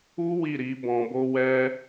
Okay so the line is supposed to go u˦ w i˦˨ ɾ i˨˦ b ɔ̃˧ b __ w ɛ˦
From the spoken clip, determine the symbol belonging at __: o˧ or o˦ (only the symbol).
o˦